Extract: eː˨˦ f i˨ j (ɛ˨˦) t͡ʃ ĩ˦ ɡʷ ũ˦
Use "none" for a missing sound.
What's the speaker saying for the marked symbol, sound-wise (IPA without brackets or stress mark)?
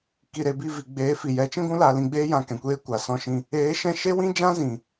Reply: ɛ˨˦